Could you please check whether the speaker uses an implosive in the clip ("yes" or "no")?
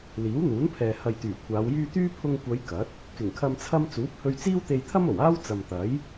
no